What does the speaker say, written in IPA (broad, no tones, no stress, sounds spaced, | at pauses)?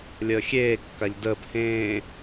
lʲ əː xʲ eː kː a ʎ d əː p h ẽː